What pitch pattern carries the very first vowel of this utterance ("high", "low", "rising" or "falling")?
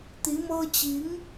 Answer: rising